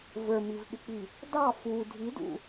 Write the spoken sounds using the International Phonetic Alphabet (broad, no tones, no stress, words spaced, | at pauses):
və˞mivɓɪk͡pi | dɑ fu dʱidṵ